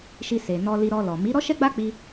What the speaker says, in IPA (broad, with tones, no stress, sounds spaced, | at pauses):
ʃ i˧ s e˨ n ɔ˧ l i˧ ɾ ɔ˧ l ɔ˨ m i˨˦ ɾ ɔ˦ ʃ ɛ˦ ɡ͡b a˦ k͡p i˦